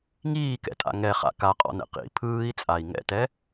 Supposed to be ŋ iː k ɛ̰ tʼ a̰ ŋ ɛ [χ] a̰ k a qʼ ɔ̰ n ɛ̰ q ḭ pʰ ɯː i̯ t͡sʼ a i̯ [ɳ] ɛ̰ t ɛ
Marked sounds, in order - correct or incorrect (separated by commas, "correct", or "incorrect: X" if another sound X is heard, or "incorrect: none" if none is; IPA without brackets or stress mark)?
correct, incorrect: ŋ